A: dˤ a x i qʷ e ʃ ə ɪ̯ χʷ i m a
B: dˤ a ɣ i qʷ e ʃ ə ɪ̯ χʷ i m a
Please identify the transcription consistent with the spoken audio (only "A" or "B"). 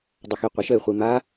A